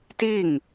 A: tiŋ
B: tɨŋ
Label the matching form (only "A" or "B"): A